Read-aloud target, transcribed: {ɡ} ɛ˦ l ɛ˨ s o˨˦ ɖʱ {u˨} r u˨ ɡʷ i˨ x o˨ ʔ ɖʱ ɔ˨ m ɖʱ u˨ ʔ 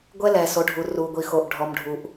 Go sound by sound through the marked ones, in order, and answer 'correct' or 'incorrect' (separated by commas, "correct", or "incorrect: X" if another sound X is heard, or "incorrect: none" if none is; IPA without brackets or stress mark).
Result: incorrect: ɡʷ, correct